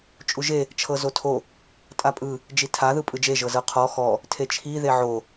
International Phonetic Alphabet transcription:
t͡ʃʼ u ʒ e | t͡ʃʰ ɤ z o tʰ o | tʼ a pʼ ɯ | d͡ʒ i tʰ a ð ɯ pʼ ɯ d͡ʒ e ʒ ɤ z ɤ qʰ ɔ x ɔ | tʰ e t͡ʃʰ i ð e ʕ o

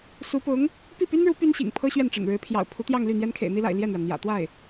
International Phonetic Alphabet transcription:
s u˧˥ p ʊ˧˥ ŋ | p i˥˩ p y˥ n ɻ u˧˥ p y˥ n ɕ ḭ˨˩ ŋ pʰ ɤ˥ ɕ ɥ ɛ˥˩ n ʈ͡ʂ ə̰˨˩ n ɻ ɻ̩˧˥ pʰ j ɑ̰˨˩ ʊ̯ pʰ u˧˥ t̪ j ɑ˥˧ ŋ l y˥˩ n̪ j ɛ˥ n kʰ ḛ˨˩ ɪ̯ n̪ i˥ l a̰˨˩ ɪ̯ l j ɛ˥˩ n ɻ a˩ n n̪ j ä̰˨˩ t̪ w a˥˩ ɪ̯

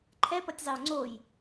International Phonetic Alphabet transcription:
ǃʰ ɛ p ʌ tʲ zˤ e ʊ̯ ŋ͡ǀ o j

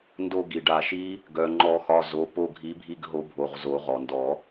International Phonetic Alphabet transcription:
n d o˦˨ ɡ i˩ ɖ a˨˩˦ ʃ i˦˥ | ɡ œ˩ ŋ͡ǃ ɔ˨˩˦ x ɒ˩˧˩ z o˩˧˩ p o˦˨ ɡʱ i˨˥ bʱ i˦˨ ɡ ɦ o˨˥ bʱ o˩˧˩ ʁ z o˨˩˦ ʁ ɔ˩ n d ɔ˨˩˦

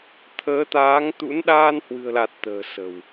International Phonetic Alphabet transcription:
t̪ʰ əː˨˦ t̪ aː˨˦ ŋ t̪ ṵ˧˥ n ɗ aː˧ n h w ɨ̤˨˩ ə̯ l a˨˩ t̚ t̪ ə̤ː˨˩ s ə̤˨˩ w

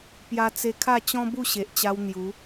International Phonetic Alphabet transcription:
p j a˧ t͡s e˧ kʰ a˥˧ t͡ɕ ɔ̃˦ b u˥˧ ɕ e˨ ʔ t͡ɕ a˧ w n̪ j u˨˦

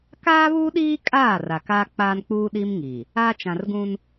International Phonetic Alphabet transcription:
k aː˦ β uː˦ ɗ iː˦ kʼ aː˦˨ r a˨ k aː˦ k͡p aː˦ n k͡p uː˦ ɗ i˦ m ŋ iː˨ | aː˦ t͡ʃ ã˨ r ɡ ũ˦ n

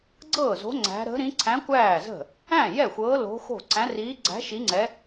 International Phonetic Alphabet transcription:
ɡ͡ǀ ɤː˥˩ z o̤˧˥ ŋ͡ǀ æ̤˧˥ ɾ ə̤˧˥ ɾ ĩ˧˥ ǀʰ æ̃˧˥ kʷ æː˥˩ z ə̤˥˩ | æ̃˥˩ j ɛ˥˩ xʷ ɤː˧˥ l o̤˧˥ x o̤˥˩ ǀ æ̃˧˥ r iː˧˥ ɡ͡ǀ æ̤˧˥ ʃ i˧˥ ŋ͡ǀ ɛ˧˥

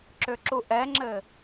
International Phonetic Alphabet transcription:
ǁ ʏ ǁ u ʔ ɛ ŋ͡ǁ ɘ

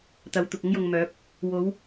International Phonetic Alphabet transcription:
t̪ ɐ˨˧ w t̪ ʊ˨ k̚ ʊ˥ ŋ j ʊ˨ ŋ m œː˨˥ p̚ | w o˨˧ w

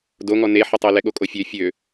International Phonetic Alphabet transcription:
d o ŋ ɔ n e ħ ə tˤ e l ɛ ɠ o kʼ o fʲ ø fʲ ø

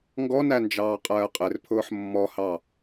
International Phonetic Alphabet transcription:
ŋ ɡ ɔ n æ n d͡ʒ ɑː qʼ ɜː qʼ ɪ r pʰ ʊː ħ mː ɔ h ɑ

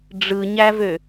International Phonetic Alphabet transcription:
ɖ͡ʐ ɯ ɲ æ v ø

